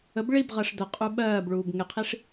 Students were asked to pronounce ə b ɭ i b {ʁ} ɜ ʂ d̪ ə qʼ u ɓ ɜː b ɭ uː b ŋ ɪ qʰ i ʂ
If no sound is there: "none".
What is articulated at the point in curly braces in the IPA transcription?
ʁ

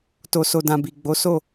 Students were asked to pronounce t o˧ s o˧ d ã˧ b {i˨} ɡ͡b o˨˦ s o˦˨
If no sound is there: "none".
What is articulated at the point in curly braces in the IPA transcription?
i˨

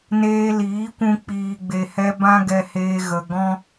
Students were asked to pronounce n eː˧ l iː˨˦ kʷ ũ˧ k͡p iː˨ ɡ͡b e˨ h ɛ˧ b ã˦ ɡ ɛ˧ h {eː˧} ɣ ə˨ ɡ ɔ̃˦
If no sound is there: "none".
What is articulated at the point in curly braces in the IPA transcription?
eː˧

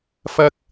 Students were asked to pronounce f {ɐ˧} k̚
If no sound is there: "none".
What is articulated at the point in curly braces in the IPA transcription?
ɐ˥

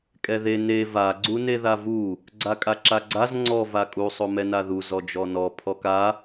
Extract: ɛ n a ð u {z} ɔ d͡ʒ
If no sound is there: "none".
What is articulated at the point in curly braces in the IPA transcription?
z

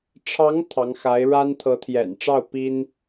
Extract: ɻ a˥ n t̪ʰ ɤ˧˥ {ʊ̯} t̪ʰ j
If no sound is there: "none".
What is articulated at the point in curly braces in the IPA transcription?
none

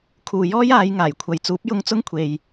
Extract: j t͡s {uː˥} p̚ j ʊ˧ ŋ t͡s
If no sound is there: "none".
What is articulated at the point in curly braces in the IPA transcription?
uː˨˥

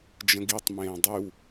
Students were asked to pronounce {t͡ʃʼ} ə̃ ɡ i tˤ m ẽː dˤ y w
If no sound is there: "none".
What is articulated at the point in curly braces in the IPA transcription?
d͡ʒ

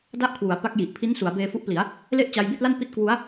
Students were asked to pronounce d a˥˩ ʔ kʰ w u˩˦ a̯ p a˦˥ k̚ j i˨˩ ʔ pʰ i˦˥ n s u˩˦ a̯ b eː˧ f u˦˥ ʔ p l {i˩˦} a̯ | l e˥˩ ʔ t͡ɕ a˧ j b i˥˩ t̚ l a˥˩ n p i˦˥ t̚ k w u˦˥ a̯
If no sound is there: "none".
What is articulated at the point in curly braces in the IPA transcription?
i˩˦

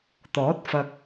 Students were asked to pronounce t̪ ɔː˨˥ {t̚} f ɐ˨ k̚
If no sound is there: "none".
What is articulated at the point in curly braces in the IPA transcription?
t̚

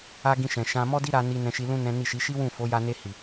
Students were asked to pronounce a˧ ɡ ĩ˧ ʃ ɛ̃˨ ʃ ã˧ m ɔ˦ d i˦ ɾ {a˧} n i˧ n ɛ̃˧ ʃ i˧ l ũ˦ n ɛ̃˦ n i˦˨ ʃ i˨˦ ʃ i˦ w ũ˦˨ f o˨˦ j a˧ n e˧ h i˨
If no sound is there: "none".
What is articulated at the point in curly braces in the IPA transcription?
a˧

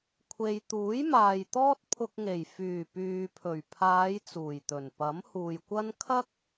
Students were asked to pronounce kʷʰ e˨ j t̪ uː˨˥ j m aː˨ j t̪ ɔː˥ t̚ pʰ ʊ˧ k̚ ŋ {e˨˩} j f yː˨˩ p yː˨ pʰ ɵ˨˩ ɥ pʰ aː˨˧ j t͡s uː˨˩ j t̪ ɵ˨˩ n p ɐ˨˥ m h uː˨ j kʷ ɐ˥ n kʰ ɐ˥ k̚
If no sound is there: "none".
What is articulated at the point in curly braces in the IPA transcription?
e˨˩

